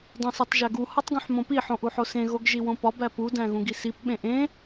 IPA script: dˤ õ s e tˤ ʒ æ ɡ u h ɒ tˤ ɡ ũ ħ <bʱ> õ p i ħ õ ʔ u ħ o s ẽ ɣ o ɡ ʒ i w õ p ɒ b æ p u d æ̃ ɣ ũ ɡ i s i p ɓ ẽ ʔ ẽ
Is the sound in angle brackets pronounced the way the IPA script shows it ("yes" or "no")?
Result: no